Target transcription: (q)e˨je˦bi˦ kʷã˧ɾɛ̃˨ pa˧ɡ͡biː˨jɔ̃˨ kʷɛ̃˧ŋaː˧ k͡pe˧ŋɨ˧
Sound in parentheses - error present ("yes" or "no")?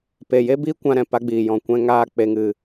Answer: yes